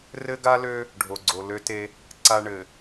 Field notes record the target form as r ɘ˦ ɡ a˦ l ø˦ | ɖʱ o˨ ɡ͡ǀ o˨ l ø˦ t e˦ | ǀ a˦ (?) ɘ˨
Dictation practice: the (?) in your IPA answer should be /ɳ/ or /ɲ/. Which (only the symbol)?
ɳ